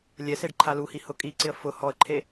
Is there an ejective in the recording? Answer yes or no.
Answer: yes